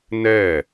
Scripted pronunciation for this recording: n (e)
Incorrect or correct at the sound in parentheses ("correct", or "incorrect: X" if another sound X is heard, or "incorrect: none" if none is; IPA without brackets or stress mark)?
incorrect: ɛ